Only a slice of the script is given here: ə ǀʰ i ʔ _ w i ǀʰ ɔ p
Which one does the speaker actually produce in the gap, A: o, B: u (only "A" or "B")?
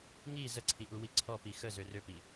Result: B